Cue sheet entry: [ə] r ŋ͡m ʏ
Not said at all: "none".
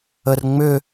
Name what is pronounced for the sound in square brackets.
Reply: ə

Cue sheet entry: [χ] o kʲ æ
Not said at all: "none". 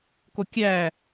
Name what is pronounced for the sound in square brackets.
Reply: k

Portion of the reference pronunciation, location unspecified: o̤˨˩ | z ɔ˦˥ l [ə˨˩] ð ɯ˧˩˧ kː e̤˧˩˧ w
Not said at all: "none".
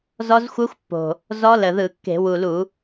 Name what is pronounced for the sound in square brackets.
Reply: ə˨˩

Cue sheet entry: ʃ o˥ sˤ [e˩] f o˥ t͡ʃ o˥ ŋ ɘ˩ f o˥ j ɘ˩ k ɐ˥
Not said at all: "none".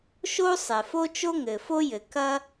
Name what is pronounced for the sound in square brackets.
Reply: ɛ˩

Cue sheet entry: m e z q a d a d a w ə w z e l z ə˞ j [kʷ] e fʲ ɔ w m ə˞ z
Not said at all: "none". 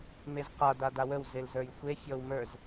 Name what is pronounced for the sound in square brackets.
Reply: xʷ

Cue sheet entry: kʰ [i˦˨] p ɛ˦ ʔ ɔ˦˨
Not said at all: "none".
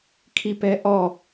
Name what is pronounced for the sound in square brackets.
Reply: i˦˨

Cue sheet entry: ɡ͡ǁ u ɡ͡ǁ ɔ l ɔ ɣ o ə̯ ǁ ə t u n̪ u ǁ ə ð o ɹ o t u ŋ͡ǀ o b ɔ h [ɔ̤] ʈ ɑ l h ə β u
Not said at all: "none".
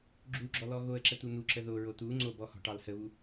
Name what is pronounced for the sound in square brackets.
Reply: ɔ̤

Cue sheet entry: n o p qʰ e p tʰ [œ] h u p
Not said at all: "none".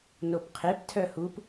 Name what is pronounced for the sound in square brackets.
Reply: œ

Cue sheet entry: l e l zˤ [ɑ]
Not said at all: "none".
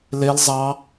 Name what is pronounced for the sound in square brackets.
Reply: ɑ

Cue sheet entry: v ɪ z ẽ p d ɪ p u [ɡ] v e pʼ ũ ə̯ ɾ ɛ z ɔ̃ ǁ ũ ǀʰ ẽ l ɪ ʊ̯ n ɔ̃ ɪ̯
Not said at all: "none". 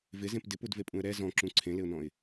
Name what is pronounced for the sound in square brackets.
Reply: d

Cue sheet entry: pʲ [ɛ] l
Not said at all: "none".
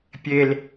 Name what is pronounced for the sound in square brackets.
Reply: e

